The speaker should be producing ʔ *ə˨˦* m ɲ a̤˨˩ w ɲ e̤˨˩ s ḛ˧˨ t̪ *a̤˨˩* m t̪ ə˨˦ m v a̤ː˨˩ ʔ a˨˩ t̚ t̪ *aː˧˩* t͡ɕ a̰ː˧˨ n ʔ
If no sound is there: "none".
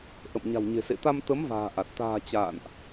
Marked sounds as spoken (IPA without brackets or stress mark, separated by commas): ə̰˧˨, a˧, a̤ː˨˩